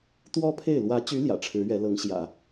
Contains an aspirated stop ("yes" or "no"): yes